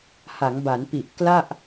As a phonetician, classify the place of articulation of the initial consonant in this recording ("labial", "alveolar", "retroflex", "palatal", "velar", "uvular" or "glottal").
glottal